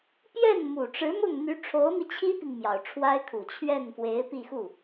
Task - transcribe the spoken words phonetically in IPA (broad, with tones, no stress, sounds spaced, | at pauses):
p j ɛ˥˩ n m u˨˩ ʈ͡ʂ ɻ̩˧˥ m ʊ˥˩ ŋ n̪ y˧˥ ʈ͡ʂʰ o˧˥ ʊ̯ m i˧ t͡ɕʰ i˥ p i˨ ŋ m j ɑ˨˩ ʊ̯ ʈ͡ʂʰ w a˥ ɪ̯ kʰ u˨˩ t͡ɕʰ ɥ ɛ˥˩ n f w e˧˥ ɪ̯ p i˥˧ x u˥˩